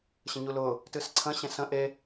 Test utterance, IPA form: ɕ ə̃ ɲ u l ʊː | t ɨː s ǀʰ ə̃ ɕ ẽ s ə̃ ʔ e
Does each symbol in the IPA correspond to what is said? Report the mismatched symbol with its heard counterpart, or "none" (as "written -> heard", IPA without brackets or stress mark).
none